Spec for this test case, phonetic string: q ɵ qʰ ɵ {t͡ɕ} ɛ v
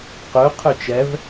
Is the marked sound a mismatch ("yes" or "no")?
yes